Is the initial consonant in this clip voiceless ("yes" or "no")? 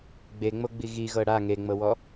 no